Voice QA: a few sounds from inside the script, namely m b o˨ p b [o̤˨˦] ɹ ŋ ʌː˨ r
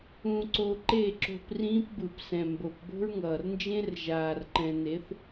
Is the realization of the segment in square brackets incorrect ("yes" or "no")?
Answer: yes